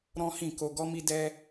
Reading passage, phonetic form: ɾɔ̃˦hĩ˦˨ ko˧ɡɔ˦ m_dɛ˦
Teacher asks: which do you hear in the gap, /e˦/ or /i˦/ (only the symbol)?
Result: i˦